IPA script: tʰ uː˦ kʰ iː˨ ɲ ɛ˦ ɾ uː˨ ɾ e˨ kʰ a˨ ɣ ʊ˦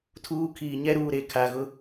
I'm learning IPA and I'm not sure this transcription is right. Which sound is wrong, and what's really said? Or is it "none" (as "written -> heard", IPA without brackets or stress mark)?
none